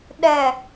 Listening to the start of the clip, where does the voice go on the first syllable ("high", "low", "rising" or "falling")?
low